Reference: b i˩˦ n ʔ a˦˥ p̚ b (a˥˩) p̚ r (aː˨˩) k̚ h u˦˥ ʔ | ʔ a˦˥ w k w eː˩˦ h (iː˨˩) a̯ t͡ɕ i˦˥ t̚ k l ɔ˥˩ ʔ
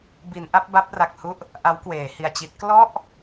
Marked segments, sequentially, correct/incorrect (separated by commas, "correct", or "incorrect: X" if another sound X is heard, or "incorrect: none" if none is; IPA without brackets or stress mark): incorrect: a˦˥, incorrect: a˨˩, incorrect: i˨˩